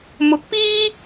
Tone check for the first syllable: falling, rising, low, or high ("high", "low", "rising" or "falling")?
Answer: rising